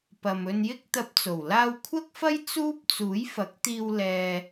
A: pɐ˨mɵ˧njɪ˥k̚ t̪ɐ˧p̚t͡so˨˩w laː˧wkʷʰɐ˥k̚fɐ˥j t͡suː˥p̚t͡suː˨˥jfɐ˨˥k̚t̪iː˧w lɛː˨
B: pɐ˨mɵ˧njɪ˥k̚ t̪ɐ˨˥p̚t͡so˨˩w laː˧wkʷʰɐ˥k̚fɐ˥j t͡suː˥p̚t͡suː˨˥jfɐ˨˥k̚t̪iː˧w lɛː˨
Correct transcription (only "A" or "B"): A